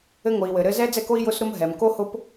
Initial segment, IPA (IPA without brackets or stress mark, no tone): ɘ